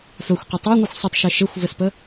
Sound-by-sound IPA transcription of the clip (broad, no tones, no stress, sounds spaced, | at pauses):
f œ xʷ q ə tˤ a ŋʷ ɨ xʷ sˤ ə tˤ ʃ e ʃ e xʷ v ɘ s p ə